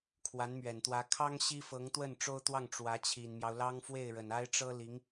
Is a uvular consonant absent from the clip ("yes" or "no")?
yes